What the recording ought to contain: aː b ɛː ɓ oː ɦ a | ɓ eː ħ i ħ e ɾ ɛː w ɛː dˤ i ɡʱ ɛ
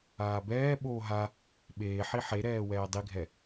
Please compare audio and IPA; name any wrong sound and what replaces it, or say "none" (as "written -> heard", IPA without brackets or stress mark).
none